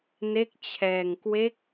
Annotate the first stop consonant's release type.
plain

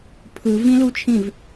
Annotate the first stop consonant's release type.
aspirated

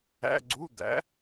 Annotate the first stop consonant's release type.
click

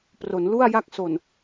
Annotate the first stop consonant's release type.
plain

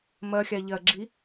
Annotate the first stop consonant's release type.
click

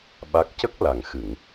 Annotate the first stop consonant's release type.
implosive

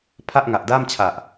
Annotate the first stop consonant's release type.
aspirated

